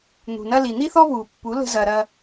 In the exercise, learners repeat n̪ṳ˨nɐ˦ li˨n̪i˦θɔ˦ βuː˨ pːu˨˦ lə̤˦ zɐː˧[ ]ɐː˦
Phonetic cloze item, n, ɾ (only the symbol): ɾ